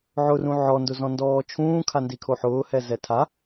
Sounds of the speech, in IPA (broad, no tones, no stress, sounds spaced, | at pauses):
ʕ ʊ r ũ ʕ ɔ n d ʊ z ɔ̃ n d ɔː t͡ʃʰ ũː kʰ a n d i kʰ o ħ ʊː h ɛ z ɛ tʰ a